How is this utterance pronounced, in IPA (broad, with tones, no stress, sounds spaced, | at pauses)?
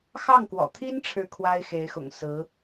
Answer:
x ɑ˥˩ ŋ k w ɔ̰˨˩ t̪ʰ i˥ n ʈ͡ʂʰ ɻ̩˥˩ kʰ w a˥ ɪ̯ x e˧˥ ɪ̯ x ʊ̰˨˩ ŋ s ɹ̩˧˥